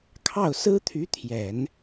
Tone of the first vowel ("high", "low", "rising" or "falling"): falling